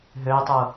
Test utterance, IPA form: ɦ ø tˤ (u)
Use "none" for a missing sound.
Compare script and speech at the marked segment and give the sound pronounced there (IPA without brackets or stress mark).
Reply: u